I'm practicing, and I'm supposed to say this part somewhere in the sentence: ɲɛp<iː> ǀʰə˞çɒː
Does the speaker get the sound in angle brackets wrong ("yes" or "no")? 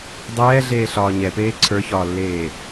yes